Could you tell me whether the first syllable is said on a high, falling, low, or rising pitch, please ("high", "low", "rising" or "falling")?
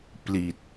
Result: low